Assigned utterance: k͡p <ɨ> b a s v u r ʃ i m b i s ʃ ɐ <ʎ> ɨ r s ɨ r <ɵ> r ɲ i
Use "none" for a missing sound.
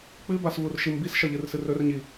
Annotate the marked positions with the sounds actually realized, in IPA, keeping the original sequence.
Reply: ɨ, ʎ, ɵ

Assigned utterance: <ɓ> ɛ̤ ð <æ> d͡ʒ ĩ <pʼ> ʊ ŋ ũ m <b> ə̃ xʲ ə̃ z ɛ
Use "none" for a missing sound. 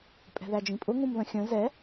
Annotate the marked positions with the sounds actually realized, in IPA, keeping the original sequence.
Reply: pʼ, æ, pʼ, ð

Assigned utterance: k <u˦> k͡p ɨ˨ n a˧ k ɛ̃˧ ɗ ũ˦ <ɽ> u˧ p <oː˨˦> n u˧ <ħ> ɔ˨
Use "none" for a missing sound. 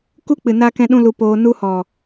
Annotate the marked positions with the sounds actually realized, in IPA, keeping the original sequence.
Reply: u˦, l, oː˧, h

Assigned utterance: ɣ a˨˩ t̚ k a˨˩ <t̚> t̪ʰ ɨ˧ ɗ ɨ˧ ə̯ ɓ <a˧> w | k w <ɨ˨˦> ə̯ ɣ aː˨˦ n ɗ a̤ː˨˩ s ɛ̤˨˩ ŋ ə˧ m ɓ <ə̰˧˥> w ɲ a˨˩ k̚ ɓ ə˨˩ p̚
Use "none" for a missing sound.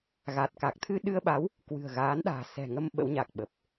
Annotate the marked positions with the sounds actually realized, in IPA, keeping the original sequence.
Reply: k̚, a˨˦, ɨ̤˨˩, ə̰˧˥

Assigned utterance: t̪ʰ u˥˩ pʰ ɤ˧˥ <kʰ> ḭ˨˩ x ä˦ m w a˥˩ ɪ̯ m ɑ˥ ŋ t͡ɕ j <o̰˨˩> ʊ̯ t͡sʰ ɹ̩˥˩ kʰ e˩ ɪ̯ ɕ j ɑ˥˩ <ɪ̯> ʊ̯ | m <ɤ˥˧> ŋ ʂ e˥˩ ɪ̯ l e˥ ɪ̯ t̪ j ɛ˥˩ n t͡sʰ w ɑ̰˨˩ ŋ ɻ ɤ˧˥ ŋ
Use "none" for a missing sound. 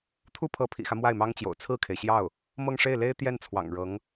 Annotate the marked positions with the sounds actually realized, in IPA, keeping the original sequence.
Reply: pʰ, o̰˨˩, none, ɤ˥˧

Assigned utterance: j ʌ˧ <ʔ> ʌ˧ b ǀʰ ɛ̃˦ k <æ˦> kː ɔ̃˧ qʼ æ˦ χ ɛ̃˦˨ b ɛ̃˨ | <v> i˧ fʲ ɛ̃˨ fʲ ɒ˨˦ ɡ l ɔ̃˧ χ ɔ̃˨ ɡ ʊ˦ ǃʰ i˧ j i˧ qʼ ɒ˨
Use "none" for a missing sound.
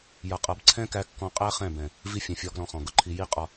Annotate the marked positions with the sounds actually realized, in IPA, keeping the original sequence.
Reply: qʼ, æ˧, v

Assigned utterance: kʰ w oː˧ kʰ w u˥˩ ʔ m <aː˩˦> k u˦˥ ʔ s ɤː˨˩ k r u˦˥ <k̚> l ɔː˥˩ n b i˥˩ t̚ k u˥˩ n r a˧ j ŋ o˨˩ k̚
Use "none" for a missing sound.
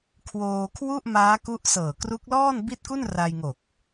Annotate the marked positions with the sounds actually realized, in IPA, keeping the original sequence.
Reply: aː˦˥, k̚

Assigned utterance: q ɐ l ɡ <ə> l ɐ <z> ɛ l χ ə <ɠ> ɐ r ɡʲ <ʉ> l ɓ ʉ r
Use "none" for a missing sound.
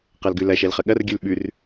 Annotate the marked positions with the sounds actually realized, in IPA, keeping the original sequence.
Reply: ʉ, ʃ, ɠ, ʉ

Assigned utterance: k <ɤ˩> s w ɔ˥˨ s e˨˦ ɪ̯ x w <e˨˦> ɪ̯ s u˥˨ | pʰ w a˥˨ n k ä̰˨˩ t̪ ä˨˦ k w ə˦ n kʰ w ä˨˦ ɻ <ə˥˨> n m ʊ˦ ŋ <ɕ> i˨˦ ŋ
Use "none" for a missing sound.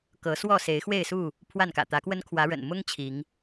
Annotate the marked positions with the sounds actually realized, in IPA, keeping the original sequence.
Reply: ɤ˨˦, e˥˨, ə̰˨˩, t͡ɕʰ

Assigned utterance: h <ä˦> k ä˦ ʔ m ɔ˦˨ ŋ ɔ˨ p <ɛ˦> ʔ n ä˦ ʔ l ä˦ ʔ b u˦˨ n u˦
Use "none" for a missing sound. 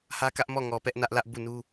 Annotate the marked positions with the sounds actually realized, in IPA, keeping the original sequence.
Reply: ä˦, ɛ˦

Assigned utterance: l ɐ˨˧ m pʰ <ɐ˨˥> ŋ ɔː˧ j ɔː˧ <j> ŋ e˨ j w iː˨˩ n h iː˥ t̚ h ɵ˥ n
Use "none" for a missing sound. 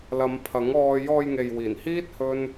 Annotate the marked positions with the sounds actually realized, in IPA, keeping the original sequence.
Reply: ɐ˨˥, j

